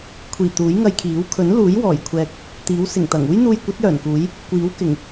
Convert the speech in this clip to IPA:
kʷʰiː˨˩ t̪uː˨˥jŋɐ˧jkʰiː˨˥w kʰɵ˨˥nluː˨˥j wɔː˨˩jkʷʰɛː˨k̚ | t̪iː˨˥w sɪ˨˩ŋt̪ɐ˨˩ŋ uː˥jn̪uː˧jkʷɐ˨˥t̚ jœː˨˩nkuː˨˥j | kʷiː˨˥w kɪ˨˩ŋ

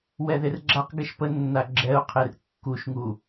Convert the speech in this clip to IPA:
wɛðerɡ͡ǁaq ɡɛʃpənːa ɡ͡ǁɛʊ̯qʰer kːuʃŋu

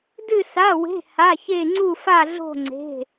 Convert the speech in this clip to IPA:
dɨ˥˧sa˧˥˧we̤˧˥˧ ha˧˥˧çe˥˧ ŋ͡ǀu˥˧fa˥˧ɮo̤˥˧ ŋ͡ǀe̤˧˥˧

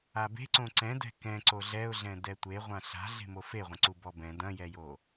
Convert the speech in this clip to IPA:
abe̤ǀõ ǀɛ̃dɛ̤ kɛ̃ ǀoɮɛʊ̯ɮɛ̃ dɛtʷe ʁʷãɬa̤ ɮe̤mofeʁʷɐ̃ ǀubɔbɛ̃ dɐ̃jɛjo

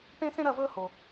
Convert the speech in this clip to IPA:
ʈẽ˦sẽ˦ ɾɐ˥˨vɵː˦ ho˨

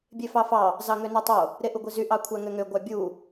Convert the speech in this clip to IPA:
bʲefɑfɑ | zɑŋønutˤo | ɾeʔuɡʷizy ʔɑkʷʰæŋøŋø ɡʷɑbʲu

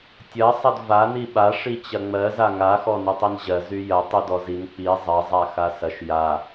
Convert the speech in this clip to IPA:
tʲɐ sˤɐdva niɓa ʂit͡ɕɐŋ͡mɜ zaŋa xɔnytˤinʑɜ zyjɐ tˤydɔzin k͡pi zˤɐ zˤaxasɐʃ ja

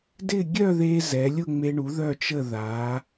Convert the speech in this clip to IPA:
dɪ˥˧ ɡʲœ˥˧ðe˧ zɛ˩˧lʲʊ˥˧ŋ͡me˧ ɳu˩˧ ðœ˧˩t͡ʃə˧˩ ða˩˧

